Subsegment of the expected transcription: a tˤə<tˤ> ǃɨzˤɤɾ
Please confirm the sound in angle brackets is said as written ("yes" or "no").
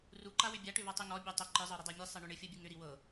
no